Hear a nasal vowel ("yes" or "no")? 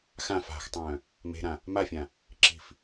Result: yes